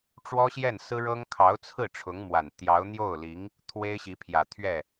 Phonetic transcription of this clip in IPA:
ʈ͡ʂwɔ˥ɕjɛ˥˩nsɹ̩˥ɻɤ˥ŋ kʰɑ˧˥ʊ̯t͡sʰɹ̩˥˩ ʈ͡ʂʰʊ˧˥ŋmwa˨˩n t̪jɑ˧˥ʊ̯ n̪jo˥˩ʊ̯li˧˥ŋ | t̪ʰwe˥ɪ̯ɕi˧˥pʰjä˨˩ t̪ʰɥɛ˥˩

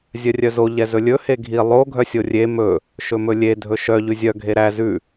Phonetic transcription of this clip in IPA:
zʲœrʲœzo ʎɛzɵlʲɵ heɡʱi lˠo ɡʱœsʲorʲe mɵ | ʃɵmɵlʲe dʱɵʃœ ʎʉzʲœ ɡʱeɾæ zʉ

